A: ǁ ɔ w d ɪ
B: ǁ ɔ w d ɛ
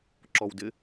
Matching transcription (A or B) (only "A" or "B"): A